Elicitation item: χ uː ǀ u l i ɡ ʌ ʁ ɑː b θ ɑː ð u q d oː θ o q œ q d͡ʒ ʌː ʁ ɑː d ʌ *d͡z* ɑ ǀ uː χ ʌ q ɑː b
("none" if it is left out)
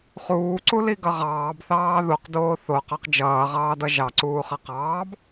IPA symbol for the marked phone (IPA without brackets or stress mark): ʒ